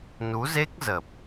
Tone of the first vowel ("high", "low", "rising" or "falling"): rising